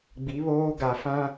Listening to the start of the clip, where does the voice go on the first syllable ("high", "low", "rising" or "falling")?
rising